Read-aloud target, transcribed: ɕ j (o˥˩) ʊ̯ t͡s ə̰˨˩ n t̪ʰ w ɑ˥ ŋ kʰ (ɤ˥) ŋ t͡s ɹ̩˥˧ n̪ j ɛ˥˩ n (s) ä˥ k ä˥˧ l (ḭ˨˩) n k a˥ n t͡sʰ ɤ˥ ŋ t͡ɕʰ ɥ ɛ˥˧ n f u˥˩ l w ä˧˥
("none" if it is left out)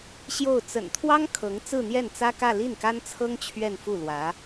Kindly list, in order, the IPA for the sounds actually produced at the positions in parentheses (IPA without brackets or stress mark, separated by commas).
o˥˩, ɤ˧˥, t͡s, i˥˩